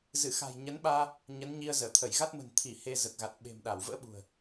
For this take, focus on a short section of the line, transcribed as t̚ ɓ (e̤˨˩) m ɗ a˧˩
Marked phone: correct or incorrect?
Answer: correct